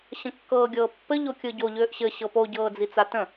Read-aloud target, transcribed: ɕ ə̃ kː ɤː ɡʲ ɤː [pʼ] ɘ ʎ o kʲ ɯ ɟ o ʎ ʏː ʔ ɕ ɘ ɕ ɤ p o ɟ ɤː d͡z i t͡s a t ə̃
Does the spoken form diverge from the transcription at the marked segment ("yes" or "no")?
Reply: yes